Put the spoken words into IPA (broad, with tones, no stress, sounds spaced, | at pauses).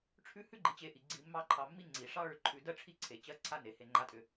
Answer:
ʈ͡ʂʰ ʉ˦ h ʉ˥ ɡ͡ǃ i˨ t͡ɕ e˨ ʔ i˩ ɡ͡ǀ i˨ mː ɑ˦ ǃʰ ɑ˨ mː i˥ ŋ͡ǀ i˩ ʂ ɑ˥ ɭ ʏ˨ ǃʰ ʉ˨ d ɜ˥ ʈ͡ʂʰ i˥ ǀʰ e˩ t͡ɕ ɜ˦ ǀʰ a˦ n e˩ h e˨ ŋ͡ǃ a˦ tʼ ʏ˨